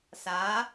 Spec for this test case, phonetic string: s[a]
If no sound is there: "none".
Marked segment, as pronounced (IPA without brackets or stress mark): a